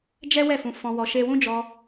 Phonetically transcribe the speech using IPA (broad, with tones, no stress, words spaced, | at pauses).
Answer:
d͡ʒɛ˦ wɛ˦˨fũ˧ fɔ̃˧wɔ˧ʃe˦ wũ˦d͡ʒɔ˧